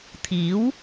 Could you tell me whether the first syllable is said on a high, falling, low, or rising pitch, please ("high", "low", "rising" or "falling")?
rising